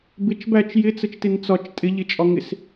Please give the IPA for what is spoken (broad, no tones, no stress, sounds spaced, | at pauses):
b ɪ t͡ʃ b æ t͡ʃ j ɪ t͡s ə t͡ʃ t ɪ n t͡s ɒ t͡ʃ tʼ ɪ ʎ ɪ t͡ʃʼ ɒ ŋ ɪ s